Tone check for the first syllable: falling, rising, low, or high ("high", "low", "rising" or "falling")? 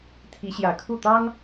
rising